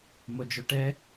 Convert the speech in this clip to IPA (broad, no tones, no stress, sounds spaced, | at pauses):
m o d͡ʒ o ʈ ɛ